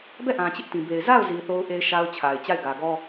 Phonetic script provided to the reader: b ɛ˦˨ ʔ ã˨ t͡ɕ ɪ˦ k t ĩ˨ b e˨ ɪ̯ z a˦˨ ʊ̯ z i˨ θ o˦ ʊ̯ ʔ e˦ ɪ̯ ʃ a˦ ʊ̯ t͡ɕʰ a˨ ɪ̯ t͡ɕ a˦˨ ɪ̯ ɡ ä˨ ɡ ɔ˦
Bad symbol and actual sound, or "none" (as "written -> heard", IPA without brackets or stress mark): k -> ʔ